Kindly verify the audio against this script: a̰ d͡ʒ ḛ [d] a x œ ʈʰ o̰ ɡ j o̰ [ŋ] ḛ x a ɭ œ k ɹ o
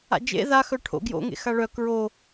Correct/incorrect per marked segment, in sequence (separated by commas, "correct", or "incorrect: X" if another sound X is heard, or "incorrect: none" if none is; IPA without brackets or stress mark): incorrect: ð, correct